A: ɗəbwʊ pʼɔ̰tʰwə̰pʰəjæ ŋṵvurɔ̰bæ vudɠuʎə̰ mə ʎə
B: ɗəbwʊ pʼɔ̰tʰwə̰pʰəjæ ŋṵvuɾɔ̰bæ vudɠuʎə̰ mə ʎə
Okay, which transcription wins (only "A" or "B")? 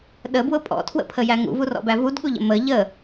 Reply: A